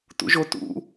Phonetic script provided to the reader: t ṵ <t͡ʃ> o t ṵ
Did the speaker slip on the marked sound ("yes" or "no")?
yes